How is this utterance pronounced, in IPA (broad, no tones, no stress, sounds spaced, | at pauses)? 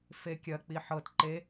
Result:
f e kʲ ɐ k͡p i ħ ɤ t ǃ e